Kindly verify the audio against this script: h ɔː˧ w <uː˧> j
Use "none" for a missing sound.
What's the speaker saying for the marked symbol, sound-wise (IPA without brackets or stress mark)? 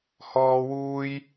uː˧